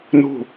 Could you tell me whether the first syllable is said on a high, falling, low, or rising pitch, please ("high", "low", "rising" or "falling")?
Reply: falling